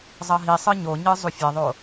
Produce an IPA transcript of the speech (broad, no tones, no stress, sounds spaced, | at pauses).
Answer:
zˤ ʌ ɦ i sˤ ɯ ɲ o ɲ ɯ zˤ u fʲ ɛ ðˤ o